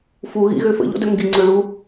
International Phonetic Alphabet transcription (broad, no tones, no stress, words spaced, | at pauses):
fu ɣḭɣøfə̰ ʎɔ̰dœŋɡi ŋ͡ǀøɭu